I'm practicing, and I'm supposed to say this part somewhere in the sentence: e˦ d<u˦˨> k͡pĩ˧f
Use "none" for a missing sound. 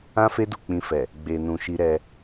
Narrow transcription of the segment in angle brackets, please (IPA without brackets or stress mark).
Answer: u˦˨